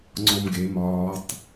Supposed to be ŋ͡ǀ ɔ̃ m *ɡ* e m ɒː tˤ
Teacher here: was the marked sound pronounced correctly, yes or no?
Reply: yes